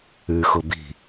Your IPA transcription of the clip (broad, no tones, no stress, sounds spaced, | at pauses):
ʉ x ʊ b i̤